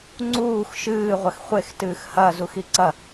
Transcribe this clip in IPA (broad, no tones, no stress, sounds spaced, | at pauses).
ŋ͡ǀ uː x ʃ ɨː ʁʷ ɐ x χʷ e x t ɨː x h ɐ z u x i ǀ ɐ